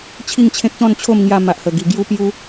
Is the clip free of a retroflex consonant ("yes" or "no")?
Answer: yes